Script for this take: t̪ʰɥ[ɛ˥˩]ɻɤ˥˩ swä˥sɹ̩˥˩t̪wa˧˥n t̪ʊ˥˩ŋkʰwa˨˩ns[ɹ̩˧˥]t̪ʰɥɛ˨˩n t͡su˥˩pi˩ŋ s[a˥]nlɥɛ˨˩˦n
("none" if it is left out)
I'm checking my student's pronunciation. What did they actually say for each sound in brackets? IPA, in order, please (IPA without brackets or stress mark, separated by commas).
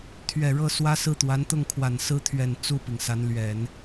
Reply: ɛ˨˩, ɹ̩˥, a˧˥